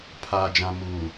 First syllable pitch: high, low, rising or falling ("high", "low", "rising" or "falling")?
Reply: low